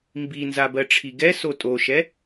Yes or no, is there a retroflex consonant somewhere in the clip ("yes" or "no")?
yes